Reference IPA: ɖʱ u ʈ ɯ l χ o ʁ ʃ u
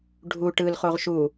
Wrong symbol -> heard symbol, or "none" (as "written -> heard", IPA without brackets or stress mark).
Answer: none